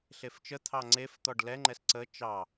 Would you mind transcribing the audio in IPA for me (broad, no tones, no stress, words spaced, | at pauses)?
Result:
ɬeft͡ʃə t̪ʰɑŋ͡ǀef t̪ɔɖlɛ ŋ͡ǃɛsǀə t͡ʃɑ